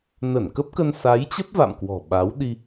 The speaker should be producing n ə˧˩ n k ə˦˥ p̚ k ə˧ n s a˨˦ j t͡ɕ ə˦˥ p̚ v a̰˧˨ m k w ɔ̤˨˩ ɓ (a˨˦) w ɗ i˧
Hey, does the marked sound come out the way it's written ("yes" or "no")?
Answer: yes